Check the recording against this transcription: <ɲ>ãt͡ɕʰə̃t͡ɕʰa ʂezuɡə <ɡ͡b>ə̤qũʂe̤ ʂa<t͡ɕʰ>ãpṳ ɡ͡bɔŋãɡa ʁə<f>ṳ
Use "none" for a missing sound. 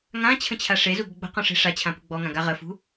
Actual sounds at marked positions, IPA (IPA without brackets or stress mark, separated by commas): ŋ, ɡ͡b, t͡ɕʰ, f